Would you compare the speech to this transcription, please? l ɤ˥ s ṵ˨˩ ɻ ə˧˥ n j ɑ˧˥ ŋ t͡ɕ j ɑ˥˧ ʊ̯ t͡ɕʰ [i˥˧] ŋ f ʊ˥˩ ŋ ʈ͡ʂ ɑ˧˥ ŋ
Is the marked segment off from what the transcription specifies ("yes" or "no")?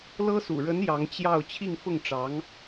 no